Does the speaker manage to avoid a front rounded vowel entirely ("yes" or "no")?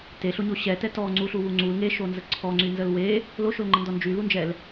no